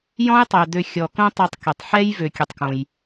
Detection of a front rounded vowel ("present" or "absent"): present